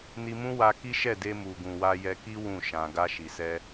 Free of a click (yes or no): yes